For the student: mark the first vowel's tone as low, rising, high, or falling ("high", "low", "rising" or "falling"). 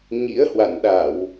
rising